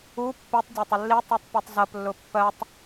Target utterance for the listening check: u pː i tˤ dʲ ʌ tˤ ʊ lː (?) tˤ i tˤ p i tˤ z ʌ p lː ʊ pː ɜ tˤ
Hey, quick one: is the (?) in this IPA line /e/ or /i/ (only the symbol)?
i